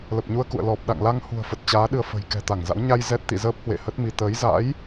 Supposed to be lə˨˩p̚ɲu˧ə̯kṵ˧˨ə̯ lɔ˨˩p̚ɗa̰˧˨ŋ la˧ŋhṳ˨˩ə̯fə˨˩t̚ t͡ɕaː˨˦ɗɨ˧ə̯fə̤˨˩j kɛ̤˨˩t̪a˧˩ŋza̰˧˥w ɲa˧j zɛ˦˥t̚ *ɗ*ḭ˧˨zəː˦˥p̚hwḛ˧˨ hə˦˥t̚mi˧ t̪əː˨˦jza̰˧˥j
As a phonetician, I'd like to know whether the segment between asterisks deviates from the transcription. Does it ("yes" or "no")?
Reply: yes